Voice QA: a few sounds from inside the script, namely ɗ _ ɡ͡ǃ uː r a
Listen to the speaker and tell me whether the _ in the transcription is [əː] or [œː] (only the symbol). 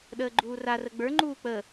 əː